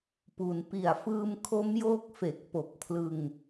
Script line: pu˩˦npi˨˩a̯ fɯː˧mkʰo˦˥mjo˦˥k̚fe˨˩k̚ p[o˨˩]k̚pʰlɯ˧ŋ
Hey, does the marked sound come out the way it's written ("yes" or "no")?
yes